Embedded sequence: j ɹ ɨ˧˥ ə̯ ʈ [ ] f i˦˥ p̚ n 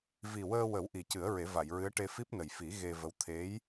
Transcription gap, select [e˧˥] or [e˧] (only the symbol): e˧